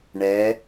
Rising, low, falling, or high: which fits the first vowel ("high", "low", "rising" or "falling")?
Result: rising